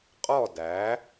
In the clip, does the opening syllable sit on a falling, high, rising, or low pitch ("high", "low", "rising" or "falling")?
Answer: falling